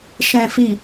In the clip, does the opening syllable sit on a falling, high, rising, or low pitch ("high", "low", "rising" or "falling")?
low